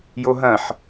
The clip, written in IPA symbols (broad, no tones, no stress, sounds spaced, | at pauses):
j o ɦ ɐ̃ ħ